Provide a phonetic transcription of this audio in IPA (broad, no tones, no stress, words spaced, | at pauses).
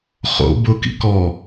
χo̰ bʊkḭ kɔ